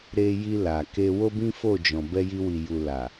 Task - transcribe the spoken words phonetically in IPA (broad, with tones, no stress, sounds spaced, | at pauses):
ɾ e˧ j i˧ l a˨ k e˧ w o˦ b ĩ˦ f o˦˨ d͡ʒ ɔ̃˨ b ɛ˧ j i˧ w i˨ j u˨ l a˨